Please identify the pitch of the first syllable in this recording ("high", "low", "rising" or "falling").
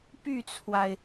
falling